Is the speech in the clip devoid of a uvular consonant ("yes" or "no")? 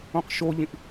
no